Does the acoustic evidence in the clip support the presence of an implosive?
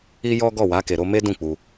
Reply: no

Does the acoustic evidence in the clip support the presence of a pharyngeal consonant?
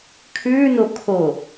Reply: no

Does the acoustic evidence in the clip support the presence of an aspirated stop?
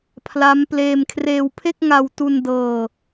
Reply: yes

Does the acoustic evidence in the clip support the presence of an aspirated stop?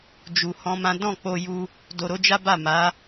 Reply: no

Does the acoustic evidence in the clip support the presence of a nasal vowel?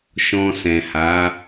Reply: yes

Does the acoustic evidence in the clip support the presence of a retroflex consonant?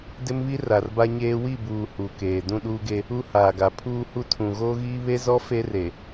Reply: no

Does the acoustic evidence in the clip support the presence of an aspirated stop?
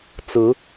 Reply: no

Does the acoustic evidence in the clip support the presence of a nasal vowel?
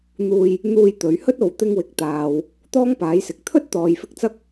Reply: no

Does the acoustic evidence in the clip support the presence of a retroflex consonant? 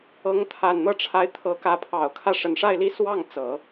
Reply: yes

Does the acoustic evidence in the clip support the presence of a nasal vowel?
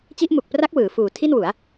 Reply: no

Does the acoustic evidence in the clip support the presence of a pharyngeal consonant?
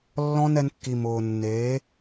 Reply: no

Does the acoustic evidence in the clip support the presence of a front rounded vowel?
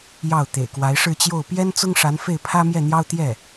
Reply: no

